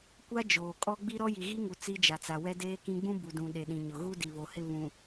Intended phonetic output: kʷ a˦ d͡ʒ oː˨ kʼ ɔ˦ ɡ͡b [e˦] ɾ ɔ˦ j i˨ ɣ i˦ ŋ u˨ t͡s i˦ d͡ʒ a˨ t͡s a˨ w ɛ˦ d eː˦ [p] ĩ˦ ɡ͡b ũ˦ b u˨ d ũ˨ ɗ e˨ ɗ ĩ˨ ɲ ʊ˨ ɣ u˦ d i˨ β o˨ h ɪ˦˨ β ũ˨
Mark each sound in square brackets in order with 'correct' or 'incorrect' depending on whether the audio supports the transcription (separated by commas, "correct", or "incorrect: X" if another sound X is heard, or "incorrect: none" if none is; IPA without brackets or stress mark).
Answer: incorrect: i˦, incorrect: k